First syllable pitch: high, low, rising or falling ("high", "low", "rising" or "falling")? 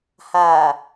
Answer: low